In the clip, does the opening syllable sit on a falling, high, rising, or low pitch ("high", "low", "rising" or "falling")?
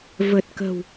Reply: low